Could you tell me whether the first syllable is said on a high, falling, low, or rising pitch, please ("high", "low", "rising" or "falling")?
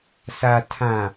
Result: low